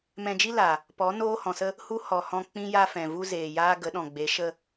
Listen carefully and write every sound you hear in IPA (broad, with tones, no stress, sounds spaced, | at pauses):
m ɛ̃˧ d͡ʒ i˦ l a˨ | p ɔ˨˦ n oː˦ h ɔ̃˨ s ə˦ | h u˦ h ɔ˨ h ɔ̃˧ k͡p ĩ˦ j a˦ f ɛ̃˨ v u˦ z eː˨ j aː˦ ɡ ə˨˦ ɗ ɔ̃˨ ɡ͡b e˨˦ ʃ ə˦